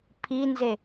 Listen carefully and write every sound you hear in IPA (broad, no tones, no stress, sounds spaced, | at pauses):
pʰ i n z e